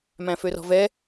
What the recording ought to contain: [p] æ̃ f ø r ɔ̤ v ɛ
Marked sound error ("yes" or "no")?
yes